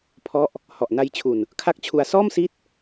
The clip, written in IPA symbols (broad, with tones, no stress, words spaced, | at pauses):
pʰɔ˦˥ʔ | hɔ˨˩ʔna˧jt͡ɕʰu˨˩n | kʰa˥˩k̚t͡ɕʰu˧a̯ sɔː˥˩msi˦˥t̚